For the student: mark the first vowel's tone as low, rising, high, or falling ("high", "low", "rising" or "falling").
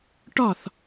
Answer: falling